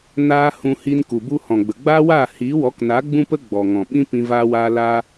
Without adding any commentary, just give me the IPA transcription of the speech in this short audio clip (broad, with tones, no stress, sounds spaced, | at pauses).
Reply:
n aː˦ h ũ˧ h i˧ n k u˨ b u˧ h ɔ̃˨ ɡ͡b ə˨ ɡ͡b aː˦ w aː˦˨ h iː˨˦ w ɔ˨˦ k n a˨˦ ɡ͡b ũ˦ p ə˦ ɡ͡b ɔ˨ ŋ ɔ̃˨ ɓ ĩ˦ p ĩ˧ v aː˧ w aː˧ l a˧